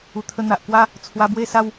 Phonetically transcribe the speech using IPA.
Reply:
u˨˩ t̪ʰ ə˧ n̪ a˨ ʔ k w a˦ | t͡sʰ w a˧ b w e˥˧ s a˥˧ w

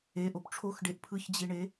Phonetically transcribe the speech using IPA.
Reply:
e ʔ o p ʈ͡ʂʰ o x ɖ e ʔ pʰ ɯ ç d͡ʑ i ɳ e

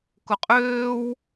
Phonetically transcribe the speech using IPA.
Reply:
k ʊ qʼ øː w

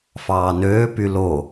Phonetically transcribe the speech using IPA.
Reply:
f ɑː n øː p y l o

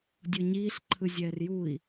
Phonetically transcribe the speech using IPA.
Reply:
dʲ o ɲ iː ɬ ǃʰ ɯ zʲ ɛː r j u i̯

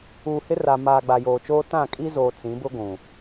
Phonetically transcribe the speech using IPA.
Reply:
uː˨ h ɪ˦ r a˨ m aː˨ ɡ͡b a˨ j oː˨ t͡ʃ oː˦ t ã˦˨ kʼ i˦ z oː˨ t͡s ĩ˨˦ b ʊ˦ ɡʷ ũ˨

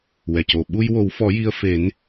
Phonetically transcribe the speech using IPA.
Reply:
w ɛ˨˩ c o˨˩ ɓ u˧ j w o˨˩˦ w f ɔ˨˩˦ j i˧ ə̯ f e˨˩˦ n

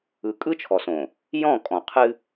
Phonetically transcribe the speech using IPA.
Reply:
ɯ˨ kʼ ɯ˦ t͡ʃʰ ɔ˨ s õ˨ | j ɔ̃˦˨ kʼ ɔ̃˨ qʰ ɨ˦

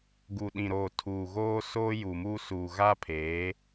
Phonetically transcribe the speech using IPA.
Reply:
ɡ u˨ ɗ ĩ˨ ɾ oː˨ tʰ uː˨ ɣ oː˦ s oː˦ j u˨ m uː˦ s uː˨ ɣ a˦ pʰ eː˨˦

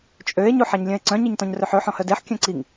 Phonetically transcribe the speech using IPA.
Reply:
t͡ʃʼ ø e̯ ɲ u ħ a ɲ lʲ œ̃ e̯ ǀ œ̃ ɲ i ɲ t ɔ̃ ɲ r ø ħ ø ħ ɔ̃ h œ d e ħ kʲ œ̃ ǀ i ŋ

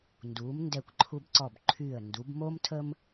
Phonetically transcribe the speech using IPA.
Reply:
n d uː˩˧ m n d ɛ˧˩ kʷ ǃʰ u˧ b ǀ ɔ˧˩ b ǃʰ y˧˩ ə̯ n d u˩˧ b m o˥ m tʰ ə˥ m

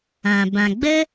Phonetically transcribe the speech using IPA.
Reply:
ã˨ b ã˨ ɡ͡b ə˦

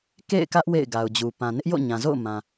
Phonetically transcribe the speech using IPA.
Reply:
k ḛ˦˨ ɪ̯ k ä˦ ʔ w ḛ˦˨ ɪ̯ ɡ a˨ ʊ̯ d͡ʑ u˨ p ã˨ n ɪ˦ ʔ j o̰˦˨ ɲ ã˨ z o̰˦˨ ʊ̯ m ã˨

